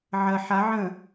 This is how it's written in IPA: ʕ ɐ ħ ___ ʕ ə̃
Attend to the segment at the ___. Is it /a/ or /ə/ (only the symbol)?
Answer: a